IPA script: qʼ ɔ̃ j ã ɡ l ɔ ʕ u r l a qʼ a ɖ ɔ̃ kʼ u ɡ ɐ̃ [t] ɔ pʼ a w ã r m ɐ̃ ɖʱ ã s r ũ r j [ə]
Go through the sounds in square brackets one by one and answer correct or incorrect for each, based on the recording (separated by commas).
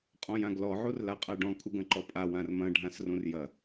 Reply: incorrect, incorrect